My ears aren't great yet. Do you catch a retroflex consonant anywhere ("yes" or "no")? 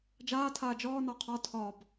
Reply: no